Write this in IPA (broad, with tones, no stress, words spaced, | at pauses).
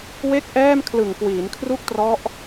we˥˩k̚ʔɛː˥˩m kʰlɯ˨˩ŋkwiː˩˦nkʰru˥˩k̚trɔ˦˥ʔ